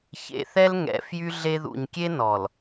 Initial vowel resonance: oral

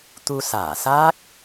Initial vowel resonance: oral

